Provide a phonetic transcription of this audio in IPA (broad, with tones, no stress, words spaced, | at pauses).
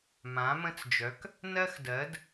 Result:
mã˩˥mə̃˧˥˧t͡sd͡ʒœ˩˥k | nɜ˥xdɜ˩˥d